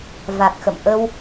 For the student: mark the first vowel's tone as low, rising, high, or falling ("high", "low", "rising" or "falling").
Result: low